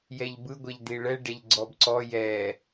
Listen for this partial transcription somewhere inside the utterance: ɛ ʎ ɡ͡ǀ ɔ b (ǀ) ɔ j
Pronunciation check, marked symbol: correct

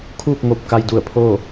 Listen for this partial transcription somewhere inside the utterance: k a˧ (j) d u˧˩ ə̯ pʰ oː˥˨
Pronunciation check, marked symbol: correct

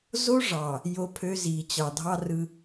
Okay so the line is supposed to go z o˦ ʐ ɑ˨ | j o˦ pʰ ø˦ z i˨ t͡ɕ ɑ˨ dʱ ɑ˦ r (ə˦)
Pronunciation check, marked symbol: incorrect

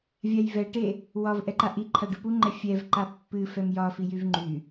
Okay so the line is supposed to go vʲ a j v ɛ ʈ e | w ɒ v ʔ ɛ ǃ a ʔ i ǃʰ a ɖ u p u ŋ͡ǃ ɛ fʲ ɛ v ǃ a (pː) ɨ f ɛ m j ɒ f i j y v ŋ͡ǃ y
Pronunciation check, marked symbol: correct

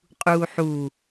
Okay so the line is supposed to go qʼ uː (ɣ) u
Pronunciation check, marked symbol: incorrect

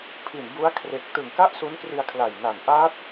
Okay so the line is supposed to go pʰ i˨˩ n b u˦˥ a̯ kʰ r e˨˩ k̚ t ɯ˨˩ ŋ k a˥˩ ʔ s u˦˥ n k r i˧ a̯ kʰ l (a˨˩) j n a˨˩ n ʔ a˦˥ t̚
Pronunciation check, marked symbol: correct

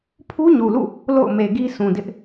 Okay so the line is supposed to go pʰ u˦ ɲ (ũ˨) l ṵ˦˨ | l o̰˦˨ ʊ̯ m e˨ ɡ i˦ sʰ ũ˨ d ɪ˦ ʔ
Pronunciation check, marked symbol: incorrect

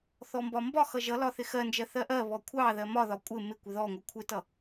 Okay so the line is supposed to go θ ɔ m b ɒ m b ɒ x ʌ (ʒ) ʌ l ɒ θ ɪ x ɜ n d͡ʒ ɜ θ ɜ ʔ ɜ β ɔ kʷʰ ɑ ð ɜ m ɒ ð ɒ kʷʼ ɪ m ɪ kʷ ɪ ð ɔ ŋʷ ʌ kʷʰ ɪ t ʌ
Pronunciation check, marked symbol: correct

